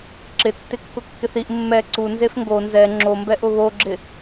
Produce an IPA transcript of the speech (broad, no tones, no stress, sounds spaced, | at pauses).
ǁ ɪ tː ɪ kː ʊ kː ɪ θ i ʔ mː ɛ ǀ u n z e f ŋ ɡ o n z ɛ ŋ͡ǁ o m b ɛ ʔ ʊ β o ɡ͡ǁ ɪ